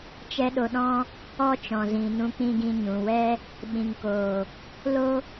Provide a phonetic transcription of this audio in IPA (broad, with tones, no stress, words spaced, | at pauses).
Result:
t͡ʃɛ˦ɗo˧ɗɔ̃˦ | ɔ˦t͡ʃɔ̃˨zĩ˨nũ˧ k͡pĩ˧ɡĩ˧ɲũ˨wɛ˦ | ɓĩ˨ŋkoː˨ | lo˦